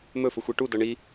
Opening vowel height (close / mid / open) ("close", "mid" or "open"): mid